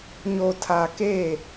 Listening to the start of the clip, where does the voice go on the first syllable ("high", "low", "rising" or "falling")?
low